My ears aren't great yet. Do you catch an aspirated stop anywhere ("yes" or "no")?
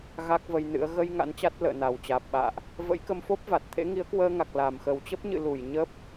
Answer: yes